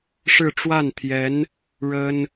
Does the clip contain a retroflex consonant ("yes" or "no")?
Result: yes